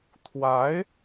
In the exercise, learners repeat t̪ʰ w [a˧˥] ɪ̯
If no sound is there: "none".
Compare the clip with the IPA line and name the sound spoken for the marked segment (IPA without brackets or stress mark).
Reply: a˧˥